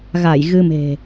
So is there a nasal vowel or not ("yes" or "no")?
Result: no